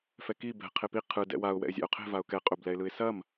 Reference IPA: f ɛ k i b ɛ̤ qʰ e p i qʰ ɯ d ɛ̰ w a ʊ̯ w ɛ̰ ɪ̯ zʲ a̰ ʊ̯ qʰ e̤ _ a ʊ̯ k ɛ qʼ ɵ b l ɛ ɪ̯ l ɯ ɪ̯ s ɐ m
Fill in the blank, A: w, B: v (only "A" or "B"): B